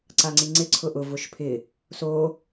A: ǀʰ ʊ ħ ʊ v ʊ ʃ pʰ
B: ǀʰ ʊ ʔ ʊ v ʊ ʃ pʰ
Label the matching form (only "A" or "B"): B